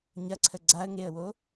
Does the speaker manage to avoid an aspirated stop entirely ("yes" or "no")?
no